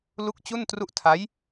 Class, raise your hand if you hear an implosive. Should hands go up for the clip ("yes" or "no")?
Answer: no